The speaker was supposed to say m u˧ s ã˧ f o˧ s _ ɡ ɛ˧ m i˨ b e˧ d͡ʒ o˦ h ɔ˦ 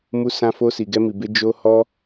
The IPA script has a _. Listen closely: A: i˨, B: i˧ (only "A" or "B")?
A